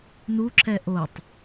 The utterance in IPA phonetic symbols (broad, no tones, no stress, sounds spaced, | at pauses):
n u ǁ ɛ ʔ o tˤ